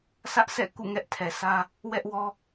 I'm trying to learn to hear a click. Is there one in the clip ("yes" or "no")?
no